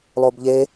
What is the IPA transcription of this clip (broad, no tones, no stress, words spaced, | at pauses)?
lˠobʎe